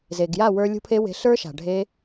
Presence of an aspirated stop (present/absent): present